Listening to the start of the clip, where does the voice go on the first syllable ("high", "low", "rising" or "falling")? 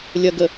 low